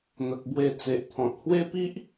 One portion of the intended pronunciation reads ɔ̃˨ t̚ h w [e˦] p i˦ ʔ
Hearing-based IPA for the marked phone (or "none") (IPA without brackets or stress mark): e˦